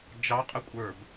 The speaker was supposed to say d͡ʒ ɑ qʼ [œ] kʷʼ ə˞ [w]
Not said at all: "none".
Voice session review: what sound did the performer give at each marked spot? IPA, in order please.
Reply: ə, b

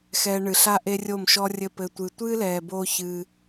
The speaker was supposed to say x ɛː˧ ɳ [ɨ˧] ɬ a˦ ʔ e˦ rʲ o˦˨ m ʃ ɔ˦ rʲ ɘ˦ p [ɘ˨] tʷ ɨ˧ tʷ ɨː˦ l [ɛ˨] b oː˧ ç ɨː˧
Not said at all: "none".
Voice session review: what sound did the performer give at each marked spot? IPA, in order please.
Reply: ɨ˨, ɘ˧, ɛː˨

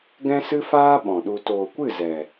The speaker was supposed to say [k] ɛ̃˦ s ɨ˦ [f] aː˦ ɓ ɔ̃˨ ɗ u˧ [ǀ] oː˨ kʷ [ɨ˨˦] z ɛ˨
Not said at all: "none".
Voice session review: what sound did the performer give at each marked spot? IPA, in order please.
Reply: ɡ, f, t, ɨ˦˨

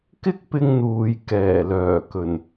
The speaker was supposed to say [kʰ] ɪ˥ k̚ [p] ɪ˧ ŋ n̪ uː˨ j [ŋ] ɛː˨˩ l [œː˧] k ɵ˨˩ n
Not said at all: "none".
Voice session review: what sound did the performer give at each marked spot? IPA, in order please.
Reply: k, p, k, œː˨˩

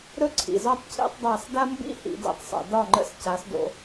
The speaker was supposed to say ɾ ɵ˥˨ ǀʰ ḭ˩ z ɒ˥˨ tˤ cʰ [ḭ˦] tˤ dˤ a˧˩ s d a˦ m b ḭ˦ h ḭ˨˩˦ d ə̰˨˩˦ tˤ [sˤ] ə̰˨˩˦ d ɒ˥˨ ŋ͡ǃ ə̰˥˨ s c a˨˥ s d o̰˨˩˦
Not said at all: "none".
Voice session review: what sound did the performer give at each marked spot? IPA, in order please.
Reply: ḭ˦, sˤ

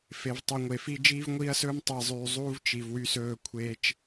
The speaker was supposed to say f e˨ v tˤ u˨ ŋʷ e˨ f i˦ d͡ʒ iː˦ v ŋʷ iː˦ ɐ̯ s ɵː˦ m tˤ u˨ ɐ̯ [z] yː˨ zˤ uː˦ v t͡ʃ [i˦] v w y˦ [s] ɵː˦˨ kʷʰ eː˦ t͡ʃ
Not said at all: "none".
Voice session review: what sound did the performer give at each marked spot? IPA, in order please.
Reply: zˤ, i˨, s

